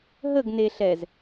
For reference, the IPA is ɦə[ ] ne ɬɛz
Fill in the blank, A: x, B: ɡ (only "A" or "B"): B